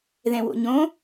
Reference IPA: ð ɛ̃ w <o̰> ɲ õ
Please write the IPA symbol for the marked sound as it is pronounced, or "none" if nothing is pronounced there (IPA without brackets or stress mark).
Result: o̰